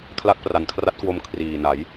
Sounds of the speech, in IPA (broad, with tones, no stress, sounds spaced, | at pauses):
kʰ l a˦˥ k̚ p r a˨˩ n kʰ r a˦˥ t̚ k w o˧ m kʰ r iː˨˩ n a˩˦ j